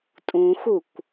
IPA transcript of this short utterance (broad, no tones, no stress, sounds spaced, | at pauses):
tʼ ũ x u kʷ